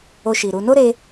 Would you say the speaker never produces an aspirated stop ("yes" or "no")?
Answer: yes